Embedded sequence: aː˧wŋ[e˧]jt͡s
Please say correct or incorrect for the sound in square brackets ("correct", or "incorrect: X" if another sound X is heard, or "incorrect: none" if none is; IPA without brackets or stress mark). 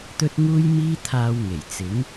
incorrect: e˨˩